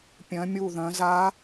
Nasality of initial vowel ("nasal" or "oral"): nasal